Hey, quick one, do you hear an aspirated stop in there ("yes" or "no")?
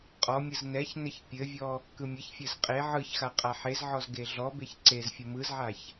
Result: no